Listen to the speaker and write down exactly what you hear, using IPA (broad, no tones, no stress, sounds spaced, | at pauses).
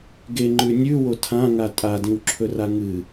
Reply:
ɡ e ŋ͡ǃ ʉ nʲ ʉ w o tʰ ã ŋ a tʼ a d ĩ w ǁʰ ɵ r a ŋ ɨ